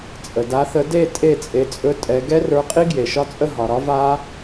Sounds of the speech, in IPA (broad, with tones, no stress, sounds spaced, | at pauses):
t͡sʼ ə˩ d a˨˦ θ ə˨˦ d e˥˨ tʼ e˥˨ t͡sʼ e˨˦ t͡sʼ ɵ˦˥ tʼ ɛ˨˦ ɡ ɛ˦˥ r ə˞˨˦ qʼ i˦˥ ɡ j e˩ ʃ ɒ˦˥ t͡sʼ ə˥˨ ɦ ɒ˩ ɾ ɒ˦˥ v a˦˥